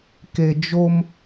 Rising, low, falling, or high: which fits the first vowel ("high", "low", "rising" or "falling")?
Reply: low